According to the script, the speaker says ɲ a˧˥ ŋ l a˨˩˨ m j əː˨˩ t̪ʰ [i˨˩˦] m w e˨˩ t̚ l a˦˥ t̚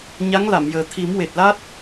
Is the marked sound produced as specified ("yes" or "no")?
yes